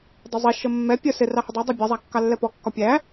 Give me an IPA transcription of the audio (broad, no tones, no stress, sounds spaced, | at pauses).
dˤ ə zˤ i ʃ ə mː ɛ pʲ ə s ɪ r ɑ h ɪ dˤ ɜ dˤ i bʲ ɑ zˤ æ kː ɑ lː ɛ p ɔ kː ɒ pʲ æ